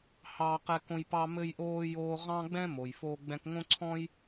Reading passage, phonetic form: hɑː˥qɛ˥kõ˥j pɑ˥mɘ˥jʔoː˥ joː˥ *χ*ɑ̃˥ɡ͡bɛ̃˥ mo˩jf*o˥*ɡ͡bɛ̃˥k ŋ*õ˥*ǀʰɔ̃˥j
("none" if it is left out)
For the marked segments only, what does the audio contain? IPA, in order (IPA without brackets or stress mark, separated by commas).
ʁ, oː˥, õ˥